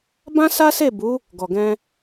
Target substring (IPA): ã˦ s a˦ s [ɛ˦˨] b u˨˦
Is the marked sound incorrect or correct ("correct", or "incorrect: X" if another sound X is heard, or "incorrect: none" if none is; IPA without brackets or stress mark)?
incorrect: e˦˨